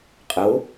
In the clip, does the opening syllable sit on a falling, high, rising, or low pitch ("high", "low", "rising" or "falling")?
rising